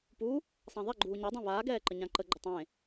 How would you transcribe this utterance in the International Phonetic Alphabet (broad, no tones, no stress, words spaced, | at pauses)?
pu | sˤãðˤɛɡ͡ǃuː ɲadˤã βaːɡɛː ǃəɲãǃəɡ͡ǃə tˤẽ